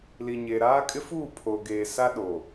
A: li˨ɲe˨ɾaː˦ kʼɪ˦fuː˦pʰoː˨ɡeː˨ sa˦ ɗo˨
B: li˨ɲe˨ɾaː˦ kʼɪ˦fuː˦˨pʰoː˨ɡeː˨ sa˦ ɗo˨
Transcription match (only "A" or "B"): B